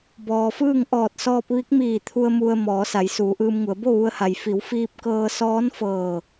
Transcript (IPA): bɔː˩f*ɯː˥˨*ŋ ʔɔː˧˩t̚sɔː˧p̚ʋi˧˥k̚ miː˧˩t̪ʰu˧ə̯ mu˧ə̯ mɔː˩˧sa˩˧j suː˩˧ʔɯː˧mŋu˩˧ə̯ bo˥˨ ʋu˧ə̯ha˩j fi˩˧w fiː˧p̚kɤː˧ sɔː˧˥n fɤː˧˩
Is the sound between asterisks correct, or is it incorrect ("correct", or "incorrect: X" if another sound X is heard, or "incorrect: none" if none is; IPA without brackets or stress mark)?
correct